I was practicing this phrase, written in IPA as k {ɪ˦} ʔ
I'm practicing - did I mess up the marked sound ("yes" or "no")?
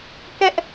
yes